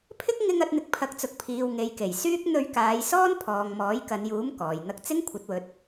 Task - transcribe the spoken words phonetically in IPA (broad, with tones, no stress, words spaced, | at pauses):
pʰɪ˥k̚ŋɪ˧ŋ ɐ˨˥t̚n̪ɪ˧k̚ pʰɐ˨˥k̚t͡sʊ˨k̚pʰiː˨w ŋe˨jke˨˩jsyː˥k̚ n̪ɵ˧ɥkaː˨˧jsɔː˥n pʰɔː˨ŋmɔː˨˥jkɐ˨˧njuː˨˥m kɔː˨jn̪ɐ˥k̚ t͡sɪ˥ŋkʷʰɐ˨˥t̚wɵ˨˥t̚